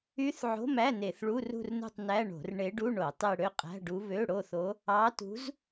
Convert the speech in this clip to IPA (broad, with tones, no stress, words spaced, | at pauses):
y˧˥θ ʕo̤˧˥˧mæ˧˥˧ ne˧˩˧θɭu˧˥˧rṳ˥˧rnṳ˥˧tˤ næ˧˥˧ɳo̤˧˩˧r ɳe˧˥ɖu˧˥˧ ɳo˧˩˧tˤe˥˧ ɽø˥˧qʼæ̤˧˥˧ɖu˧˥ βø˧˥˧ɽo˥˧θo˧˥ | ɑ˧˥tṳ˧˥z